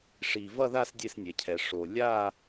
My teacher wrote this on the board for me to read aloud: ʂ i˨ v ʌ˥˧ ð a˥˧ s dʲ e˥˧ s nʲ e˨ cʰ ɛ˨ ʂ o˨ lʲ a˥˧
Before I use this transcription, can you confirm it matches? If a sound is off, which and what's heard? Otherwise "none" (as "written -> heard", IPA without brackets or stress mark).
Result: none